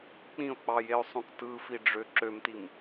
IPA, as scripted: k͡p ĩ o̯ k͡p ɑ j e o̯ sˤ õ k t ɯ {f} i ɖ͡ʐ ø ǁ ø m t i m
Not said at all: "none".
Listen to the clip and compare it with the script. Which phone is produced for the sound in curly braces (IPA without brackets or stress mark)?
f